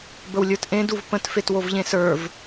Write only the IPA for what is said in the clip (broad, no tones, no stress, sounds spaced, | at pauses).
b ə w lʲ ə˞ t ʔ ẽ d u v p ə̃ t f e t w o v ʎ ẽ s ə˞ v